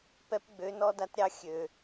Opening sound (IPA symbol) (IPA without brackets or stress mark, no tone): p